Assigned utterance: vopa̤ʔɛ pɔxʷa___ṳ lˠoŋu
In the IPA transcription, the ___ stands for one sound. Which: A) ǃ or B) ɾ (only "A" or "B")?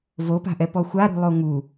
B